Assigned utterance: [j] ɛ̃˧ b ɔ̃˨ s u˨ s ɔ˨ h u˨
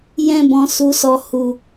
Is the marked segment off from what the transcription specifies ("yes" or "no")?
no